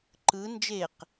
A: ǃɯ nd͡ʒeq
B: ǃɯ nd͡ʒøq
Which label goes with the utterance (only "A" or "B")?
A